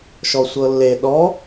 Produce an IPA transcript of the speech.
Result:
ʃɔsʷɤlːe ɗɔ

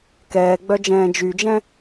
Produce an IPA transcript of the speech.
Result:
kɛːɡ͡bœd͡ʒɛ̃ː d͡ʒyd͡ʒɛ̃

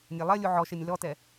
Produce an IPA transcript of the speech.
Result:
nʲɛlˠɐlʲu ʕɔʃɛnʲ lɔtɛ

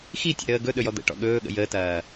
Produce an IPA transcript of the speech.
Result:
xitʲə̰ ɾəːɡɵ ɗɵjɔd̪ə̰ ʈɔ̰ɠɵːɠə̰ jəːtɐː

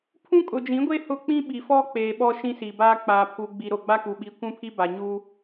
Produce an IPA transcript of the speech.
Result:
pʰũ˦kʼʊ˨d͡ʒĩ˨˦ɡʷe˦ hʊ˦k͡pĩ˦ɓi˨ fɔ˦k͡peː˨ ɓɔ˦ ʃĩ˦siː˨baː˦ k͡paː˨ pʰu˨ ɡ͡bi˨ɾo˨ ɡ͡ba˦ku˨ ɓi˨ kʷũ˦pʰi˦ ba˨ɲu˦

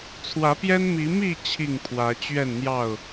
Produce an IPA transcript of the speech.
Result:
t͡sʰwä˨˦pjɛ˦n mi˨˦mi˥˨ t͡ɕʰi˥˨ŋpʰwä˨˦ t͡ɕɥɛ˥˨nn̪jɑ˥˨ʊ̯

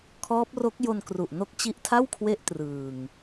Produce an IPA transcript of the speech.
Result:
kʰɔː˦˥p̚ro˦˥k̚jo˧nkru˨˩ʔ no˦˥k̚t͡ɕi˦˥ʔtʰa˥˩wkʰwe˦˥ʔ trɯː˨˩ŋ

